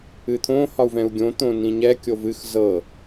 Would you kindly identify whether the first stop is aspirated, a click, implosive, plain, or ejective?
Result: aspirated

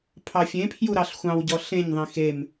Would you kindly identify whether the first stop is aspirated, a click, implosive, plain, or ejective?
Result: aspirated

